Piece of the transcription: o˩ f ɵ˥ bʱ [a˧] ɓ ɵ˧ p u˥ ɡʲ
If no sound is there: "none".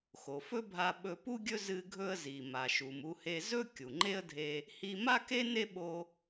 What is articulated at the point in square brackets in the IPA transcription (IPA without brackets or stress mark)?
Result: a˧